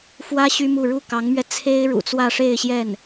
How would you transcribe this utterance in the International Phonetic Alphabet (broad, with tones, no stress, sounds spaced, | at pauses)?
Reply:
f w ä˥ ɕ y˥ m u˥˧ ɻ u˥˩ k ɑ˧˥ ŋ m ɥ ɛ˧ t͡sʰ e˥ ɪ̯ ɻ ṵ˨˩ t͡s w ä˥˧ ʂ e˥˧ ɪ̯ ɕ j ɛ˥˩ n